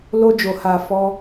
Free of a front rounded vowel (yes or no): yes